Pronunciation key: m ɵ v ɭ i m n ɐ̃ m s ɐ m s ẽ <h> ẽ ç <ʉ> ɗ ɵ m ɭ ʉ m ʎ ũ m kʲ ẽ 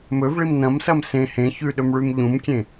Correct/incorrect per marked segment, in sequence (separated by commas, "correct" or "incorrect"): correct, correct